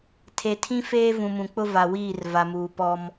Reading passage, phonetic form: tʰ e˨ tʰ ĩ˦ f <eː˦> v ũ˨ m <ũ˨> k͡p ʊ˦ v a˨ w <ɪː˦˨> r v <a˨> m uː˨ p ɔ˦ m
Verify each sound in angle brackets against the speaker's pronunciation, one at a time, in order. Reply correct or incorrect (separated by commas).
correct, correct, incorrect, correct